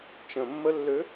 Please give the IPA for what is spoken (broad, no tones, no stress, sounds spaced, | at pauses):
t͡ʃ ə̃ mː ə lː ø